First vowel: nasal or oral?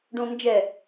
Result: nasal